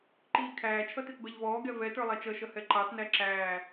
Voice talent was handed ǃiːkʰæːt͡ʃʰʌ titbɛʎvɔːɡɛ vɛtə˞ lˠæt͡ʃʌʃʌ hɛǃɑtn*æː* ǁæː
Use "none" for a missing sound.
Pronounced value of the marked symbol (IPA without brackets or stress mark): æ